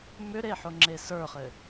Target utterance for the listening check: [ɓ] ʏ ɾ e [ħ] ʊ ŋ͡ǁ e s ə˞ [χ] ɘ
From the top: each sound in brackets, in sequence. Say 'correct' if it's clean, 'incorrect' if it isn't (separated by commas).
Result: incorrect, correct, correct